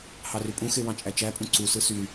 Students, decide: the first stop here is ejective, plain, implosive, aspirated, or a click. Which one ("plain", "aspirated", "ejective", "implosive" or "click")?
ejective